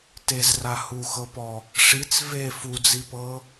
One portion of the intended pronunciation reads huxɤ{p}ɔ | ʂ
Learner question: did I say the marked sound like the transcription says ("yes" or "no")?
yes